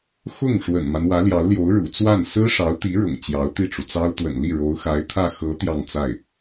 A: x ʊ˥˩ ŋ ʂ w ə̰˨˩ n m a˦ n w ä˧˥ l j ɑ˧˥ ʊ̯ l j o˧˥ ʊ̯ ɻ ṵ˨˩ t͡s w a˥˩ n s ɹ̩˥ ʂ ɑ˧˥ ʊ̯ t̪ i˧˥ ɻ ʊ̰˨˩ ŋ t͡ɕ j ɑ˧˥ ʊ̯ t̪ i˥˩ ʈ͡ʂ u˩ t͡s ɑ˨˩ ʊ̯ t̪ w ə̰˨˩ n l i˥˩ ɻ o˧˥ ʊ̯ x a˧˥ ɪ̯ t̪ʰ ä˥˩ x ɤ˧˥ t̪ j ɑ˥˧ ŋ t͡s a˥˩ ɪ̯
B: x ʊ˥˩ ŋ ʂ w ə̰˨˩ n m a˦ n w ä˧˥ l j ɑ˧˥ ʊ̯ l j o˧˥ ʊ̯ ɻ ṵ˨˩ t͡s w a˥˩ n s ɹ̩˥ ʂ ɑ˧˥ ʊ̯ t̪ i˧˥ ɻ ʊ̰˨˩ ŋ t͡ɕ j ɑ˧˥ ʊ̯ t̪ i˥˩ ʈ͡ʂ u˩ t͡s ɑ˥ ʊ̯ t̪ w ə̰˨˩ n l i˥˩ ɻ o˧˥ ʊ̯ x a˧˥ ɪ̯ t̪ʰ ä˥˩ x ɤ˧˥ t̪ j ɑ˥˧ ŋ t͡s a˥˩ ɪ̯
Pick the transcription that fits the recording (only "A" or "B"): B